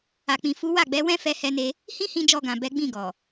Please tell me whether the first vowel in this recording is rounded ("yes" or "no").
no